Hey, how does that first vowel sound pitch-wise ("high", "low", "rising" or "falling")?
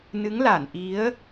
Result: rising